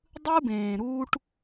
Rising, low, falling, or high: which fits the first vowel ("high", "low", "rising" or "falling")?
high